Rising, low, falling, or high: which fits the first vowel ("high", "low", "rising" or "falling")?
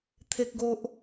low